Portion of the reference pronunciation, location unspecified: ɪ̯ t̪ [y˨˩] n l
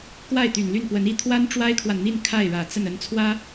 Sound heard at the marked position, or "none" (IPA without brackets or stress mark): y˨˩